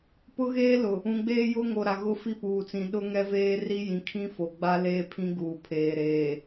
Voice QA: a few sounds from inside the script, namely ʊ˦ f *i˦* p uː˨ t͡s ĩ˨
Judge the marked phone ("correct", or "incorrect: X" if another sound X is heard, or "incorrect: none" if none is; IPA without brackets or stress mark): correct